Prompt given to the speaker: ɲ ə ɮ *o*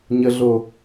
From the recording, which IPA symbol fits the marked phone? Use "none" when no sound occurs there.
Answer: o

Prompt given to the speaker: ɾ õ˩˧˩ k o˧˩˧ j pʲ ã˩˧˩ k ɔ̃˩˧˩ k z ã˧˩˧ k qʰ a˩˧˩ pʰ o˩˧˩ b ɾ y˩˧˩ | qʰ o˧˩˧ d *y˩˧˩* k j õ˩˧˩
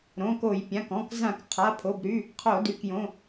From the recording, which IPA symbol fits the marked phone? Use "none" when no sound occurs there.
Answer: y˩˧˩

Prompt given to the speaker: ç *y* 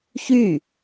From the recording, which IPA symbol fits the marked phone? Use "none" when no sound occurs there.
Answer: y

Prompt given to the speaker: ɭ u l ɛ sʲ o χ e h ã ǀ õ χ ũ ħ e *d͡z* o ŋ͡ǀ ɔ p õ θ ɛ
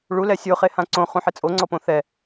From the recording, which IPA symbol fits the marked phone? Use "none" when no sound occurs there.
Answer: t͡sʼ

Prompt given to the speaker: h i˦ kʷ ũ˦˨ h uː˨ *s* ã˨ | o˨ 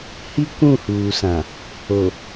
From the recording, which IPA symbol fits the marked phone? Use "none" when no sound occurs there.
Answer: s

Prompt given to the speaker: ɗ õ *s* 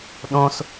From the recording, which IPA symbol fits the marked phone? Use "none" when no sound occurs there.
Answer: s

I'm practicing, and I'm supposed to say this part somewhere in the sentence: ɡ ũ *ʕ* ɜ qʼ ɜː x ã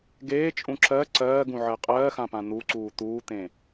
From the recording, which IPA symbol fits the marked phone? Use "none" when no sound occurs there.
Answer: ʕ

